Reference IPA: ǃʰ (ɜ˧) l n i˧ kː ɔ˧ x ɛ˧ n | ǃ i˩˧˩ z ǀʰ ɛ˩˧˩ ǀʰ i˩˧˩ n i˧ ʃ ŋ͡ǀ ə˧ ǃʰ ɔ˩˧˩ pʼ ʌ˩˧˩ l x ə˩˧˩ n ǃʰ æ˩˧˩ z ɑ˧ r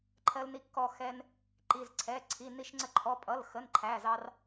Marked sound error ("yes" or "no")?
no